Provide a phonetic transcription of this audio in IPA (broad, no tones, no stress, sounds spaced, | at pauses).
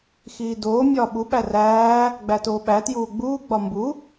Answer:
x iː d oː mʲ ɒː ɓ u ɓ æ r æː | ɡ͡b æ t oː ɓ æ t j uː ɡ͡b uː ɡ͡b ɒ m b u